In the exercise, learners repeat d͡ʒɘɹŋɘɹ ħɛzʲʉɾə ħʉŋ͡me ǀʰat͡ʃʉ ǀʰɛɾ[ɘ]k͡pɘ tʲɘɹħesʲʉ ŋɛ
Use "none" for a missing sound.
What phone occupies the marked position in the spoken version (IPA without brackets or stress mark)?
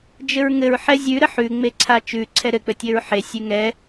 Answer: ɘ